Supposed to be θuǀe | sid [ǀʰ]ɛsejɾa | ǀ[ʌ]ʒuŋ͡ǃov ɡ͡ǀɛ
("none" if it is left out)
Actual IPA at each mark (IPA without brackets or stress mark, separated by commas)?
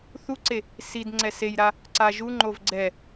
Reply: ŋ͡ǀ, a